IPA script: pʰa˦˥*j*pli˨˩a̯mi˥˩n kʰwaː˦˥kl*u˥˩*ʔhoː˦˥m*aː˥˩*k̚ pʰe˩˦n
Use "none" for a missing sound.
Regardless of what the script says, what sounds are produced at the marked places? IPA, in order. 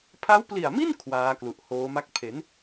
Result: w, u˨˩, a˥˩

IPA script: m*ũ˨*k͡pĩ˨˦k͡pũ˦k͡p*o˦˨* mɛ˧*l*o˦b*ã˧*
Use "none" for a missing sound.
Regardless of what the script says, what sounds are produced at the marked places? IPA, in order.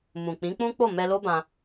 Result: ũ˨, o˦˨, l, ã˧

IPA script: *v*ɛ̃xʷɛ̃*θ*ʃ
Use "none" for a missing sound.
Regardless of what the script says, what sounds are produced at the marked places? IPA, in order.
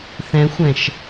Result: θ, none

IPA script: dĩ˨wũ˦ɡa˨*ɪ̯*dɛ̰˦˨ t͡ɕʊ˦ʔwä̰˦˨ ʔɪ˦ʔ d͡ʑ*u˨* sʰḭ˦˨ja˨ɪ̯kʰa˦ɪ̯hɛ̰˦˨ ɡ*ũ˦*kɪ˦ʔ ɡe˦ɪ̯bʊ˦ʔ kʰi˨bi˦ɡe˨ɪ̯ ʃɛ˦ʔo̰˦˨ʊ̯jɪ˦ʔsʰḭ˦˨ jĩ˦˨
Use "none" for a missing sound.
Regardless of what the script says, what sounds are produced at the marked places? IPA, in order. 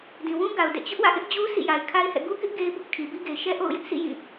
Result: ʊ̯, u˦, u˦

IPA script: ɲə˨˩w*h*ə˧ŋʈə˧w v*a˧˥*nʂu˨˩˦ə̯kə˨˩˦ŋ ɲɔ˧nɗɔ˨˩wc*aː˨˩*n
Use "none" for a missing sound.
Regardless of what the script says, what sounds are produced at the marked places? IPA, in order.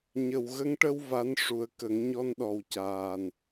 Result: ɣ, a˧˥, aː˨˩

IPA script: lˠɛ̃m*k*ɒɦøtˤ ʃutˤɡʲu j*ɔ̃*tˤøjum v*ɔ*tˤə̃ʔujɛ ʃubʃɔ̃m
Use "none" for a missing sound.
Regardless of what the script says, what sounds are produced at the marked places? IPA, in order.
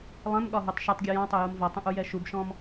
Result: ɠ, ɔ̃, ɔ

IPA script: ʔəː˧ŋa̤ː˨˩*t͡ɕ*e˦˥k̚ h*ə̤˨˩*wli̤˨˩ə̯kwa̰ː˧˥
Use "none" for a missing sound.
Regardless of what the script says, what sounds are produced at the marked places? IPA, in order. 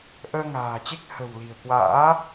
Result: t͡ɕ, ə̤˨˩

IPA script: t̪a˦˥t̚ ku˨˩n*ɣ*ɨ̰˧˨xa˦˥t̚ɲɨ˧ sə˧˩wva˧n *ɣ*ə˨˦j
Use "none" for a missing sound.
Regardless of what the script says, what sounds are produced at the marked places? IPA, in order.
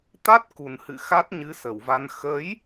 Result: h, x

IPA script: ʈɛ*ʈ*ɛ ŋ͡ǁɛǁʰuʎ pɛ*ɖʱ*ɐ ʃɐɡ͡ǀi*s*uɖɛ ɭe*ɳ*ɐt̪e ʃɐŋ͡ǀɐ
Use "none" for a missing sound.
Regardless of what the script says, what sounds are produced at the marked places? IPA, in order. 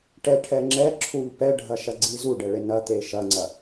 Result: ʈʰ, ɖʱ, z, n

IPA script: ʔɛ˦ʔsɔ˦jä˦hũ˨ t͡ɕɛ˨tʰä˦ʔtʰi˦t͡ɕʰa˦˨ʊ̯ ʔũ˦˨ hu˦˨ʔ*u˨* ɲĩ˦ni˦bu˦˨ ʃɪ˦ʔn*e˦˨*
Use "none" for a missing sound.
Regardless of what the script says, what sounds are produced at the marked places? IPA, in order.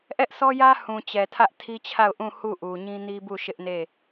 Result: u˨, e˦˨

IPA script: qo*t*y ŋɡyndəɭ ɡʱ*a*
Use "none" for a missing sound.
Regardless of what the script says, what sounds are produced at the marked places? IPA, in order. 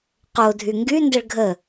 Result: dʱ, ə

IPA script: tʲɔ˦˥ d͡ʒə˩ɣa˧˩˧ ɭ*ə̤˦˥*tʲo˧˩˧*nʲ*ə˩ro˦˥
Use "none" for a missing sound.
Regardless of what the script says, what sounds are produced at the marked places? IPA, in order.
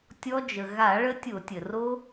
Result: ə˦˥, tʲ

